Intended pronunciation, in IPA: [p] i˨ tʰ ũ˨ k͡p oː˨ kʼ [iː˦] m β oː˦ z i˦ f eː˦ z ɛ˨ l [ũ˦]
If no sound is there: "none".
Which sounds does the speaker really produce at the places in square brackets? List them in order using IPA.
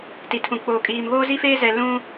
t, iː˨, ũ˦

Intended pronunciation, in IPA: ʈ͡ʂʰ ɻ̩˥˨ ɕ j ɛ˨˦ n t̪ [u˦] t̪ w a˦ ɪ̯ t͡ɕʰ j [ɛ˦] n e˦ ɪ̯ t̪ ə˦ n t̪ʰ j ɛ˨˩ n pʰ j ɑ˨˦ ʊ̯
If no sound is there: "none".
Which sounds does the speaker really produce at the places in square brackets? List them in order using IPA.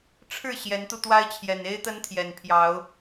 u˧, ɛ˨˩

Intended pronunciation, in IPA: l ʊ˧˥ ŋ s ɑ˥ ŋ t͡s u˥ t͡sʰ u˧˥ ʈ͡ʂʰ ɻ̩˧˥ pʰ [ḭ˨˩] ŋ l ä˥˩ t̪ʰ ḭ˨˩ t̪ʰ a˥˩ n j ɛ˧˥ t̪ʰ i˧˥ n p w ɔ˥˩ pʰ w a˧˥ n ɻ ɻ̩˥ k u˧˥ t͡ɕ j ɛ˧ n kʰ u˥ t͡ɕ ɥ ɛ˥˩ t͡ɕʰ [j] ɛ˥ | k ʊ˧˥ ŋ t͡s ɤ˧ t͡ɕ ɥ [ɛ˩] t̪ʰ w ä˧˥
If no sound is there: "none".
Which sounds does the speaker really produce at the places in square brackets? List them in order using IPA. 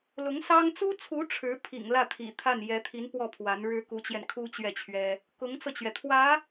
ḭ˨˩, ɥ, ɛ˩

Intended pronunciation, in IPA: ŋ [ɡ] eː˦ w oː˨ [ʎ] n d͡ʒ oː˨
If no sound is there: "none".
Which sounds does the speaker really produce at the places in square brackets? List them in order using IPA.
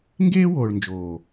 ɡ, ɭ

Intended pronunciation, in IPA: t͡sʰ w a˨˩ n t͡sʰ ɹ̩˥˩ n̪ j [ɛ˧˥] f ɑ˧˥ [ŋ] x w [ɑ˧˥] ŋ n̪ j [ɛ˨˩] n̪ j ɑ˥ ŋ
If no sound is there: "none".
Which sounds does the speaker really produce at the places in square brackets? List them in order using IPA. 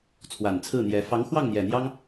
ɛ˧˥, ŋ, ɑ˥˩, ɛ˨˩

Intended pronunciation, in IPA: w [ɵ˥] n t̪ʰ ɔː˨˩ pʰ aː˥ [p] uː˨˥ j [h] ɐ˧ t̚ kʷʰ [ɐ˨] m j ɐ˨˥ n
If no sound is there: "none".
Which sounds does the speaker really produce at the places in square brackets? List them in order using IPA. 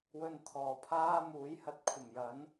ɵ˧, m, h, ɐ˨˩

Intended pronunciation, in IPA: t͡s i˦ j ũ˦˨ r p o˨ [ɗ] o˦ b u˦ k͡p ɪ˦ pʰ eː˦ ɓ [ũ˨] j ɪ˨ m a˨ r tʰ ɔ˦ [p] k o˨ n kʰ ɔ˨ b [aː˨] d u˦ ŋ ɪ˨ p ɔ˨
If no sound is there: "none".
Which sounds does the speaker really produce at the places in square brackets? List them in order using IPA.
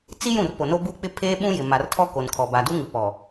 n, ũ˦, none, aː˨

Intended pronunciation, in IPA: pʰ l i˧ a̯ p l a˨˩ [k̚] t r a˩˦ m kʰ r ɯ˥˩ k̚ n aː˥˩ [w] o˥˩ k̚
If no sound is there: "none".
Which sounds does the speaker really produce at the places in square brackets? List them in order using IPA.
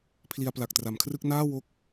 k̚, w

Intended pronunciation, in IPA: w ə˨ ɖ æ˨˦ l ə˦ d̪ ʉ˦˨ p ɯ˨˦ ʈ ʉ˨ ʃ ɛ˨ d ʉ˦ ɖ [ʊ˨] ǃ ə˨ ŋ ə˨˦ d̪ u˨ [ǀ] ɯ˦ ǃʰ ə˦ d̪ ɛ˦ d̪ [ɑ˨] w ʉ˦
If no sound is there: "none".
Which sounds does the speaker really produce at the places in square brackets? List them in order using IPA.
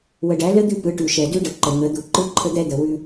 ə˨, ǃ, ə˨

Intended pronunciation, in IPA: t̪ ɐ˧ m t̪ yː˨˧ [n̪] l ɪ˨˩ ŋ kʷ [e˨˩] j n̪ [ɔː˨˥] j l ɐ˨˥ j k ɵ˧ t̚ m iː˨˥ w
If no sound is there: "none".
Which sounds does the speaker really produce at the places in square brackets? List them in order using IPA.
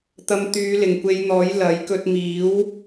none, e˨˧, ɔː˨˥

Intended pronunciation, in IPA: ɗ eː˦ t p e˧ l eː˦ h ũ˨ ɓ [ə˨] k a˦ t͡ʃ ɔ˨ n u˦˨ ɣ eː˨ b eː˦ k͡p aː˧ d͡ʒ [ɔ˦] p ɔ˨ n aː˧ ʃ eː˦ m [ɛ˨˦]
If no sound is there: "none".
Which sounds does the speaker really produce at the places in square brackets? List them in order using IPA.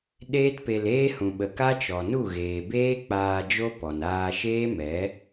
ə˨, o˦, ɛ˨˦

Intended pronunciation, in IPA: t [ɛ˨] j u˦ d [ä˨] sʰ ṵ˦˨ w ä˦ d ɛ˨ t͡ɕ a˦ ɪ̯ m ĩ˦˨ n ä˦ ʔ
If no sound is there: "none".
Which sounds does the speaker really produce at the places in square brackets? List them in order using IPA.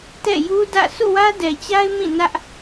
ɛ̰˦˨, ä̰˦˨

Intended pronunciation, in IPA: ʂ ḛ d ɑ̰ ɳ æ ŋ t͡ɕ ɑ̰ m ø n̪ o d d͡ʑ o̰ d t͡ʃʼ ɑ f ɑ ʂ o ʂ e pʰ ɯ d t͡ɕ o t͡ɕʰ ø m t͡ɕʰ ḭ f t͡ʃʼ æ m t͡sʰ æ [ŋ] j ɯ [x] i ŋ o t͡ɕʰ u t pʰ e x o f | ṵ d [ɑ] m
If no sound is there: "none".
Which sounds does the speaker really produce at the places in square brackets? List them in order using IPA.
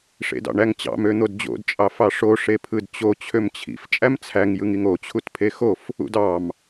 ŋ, ŋ, ɑ

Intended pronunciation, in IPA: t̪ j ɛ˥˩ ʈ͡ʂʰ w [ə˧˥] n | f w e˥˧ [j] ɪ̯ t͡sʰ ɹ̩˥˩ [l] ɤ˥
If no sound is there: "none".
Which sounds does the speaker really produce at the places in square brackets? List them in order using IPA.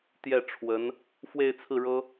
ə˧˥, none, ɻ

